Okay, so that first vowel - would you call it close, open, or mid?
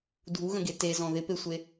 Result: close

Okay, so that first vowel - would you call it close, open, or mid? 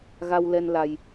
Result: open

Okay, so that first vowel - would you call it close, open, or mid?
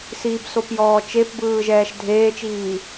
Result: close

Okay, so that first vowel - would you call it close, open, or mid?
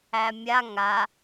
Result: open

